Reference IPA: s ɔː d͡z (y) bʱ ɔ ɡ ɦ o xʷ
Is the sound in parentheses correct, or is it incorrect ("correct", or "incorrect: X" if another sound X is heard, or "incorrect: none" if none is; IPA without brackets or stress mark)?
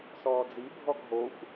incorrect: i